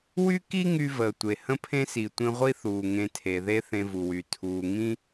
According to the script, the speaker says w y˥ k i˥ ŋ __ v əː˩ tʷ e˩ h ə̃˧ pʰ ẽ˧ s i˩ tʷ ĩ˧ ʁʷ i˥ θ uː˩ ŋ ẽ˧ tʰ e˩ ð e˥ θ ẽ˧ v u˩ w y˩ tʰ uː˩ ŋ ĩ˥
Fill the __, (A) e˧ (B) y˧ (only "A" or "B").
B